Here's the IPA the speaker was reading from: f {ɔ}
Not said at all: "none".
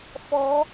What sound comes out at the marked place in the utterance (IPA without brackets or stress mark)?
ɔ